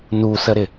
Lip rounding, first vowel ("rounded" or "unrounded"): rounded